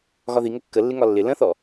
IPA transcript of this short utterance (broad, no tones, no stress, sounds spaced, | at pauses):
ɣ ɒ ð i ŋ ə kː ə lː ɪ ŋ ɒ lː ɪ l ə̃ θ ɔ